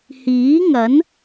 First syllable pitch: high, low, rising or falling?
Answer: rising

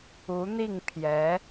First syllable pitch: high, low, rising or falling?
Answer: rising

